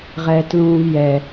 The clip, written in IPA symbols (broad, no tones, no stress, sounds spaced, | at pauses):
ʁ ɛː t l ũː v j ɛ